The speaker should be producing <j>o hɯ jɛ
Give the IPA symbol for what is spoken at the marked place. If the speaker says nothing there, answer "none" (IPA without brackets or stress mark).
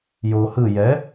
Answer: j